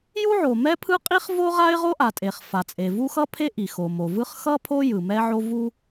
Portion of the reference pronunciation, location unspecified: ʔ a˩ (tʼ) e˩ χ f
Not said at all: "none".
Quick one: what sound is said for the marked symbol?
tʼ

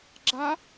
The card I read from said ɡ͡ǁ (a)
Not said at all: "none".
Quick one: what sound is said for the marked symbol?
a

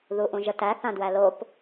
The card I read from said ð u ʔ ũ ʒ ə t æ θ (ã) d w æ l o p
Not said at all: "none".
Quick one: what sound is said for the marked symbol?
ã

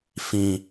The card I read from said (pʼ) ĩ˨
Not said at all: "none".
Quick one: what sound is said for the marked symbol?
f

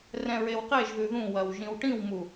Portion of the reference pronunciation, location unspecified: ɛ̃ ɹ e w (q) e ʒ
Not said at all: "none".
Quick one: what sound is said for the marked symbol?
q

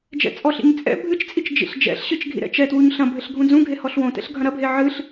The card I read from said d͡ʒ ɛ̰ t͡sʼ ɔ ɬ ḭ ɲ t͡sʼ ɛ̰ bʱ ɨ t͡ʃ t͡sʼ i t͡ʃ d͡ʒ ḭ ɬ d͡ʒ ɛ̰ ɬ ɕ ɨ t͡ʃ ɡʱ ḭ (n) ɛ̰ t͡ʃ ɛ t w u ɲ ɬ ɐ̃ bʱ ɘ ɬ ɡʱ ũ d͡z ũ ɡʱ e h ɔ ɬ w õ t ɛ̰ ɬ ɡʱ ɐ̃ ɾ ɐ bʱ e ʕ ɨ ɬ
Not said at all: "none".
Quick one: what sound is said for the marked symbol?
ɾ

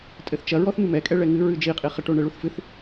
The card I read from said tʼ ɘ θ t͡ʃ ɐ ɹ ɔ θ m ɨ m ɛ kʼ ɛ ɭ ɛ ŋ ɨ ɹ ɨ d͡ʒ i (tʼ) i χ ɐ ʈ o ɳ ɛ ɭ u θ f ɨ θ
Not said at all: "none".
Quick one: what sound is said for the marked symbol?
qʼ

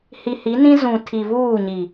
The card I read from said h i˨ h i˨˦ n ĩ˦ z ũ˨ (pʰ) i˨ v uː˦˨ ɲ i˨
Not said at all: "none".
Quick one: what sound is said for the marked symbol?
tʰ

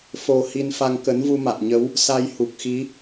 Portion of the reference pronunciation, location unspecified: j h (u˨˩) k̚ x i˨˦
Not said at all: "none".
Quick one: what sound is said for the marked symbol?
u˨˩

